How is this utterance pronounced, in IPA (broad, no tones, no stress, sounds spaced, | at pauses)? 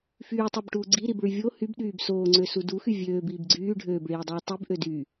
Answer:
f yː tˤ o b ʈ uː ɡ͡ǀ i ɾ i b ɭ y vʲ o h y b ɗ yː b s oː ŋ͡ǀ ø s u d u x y vʲ øː b iː b ɡ͡ǀ yː ɖʱ øː b ɭ iː dˤ iː tˤ i b ʔ ø d y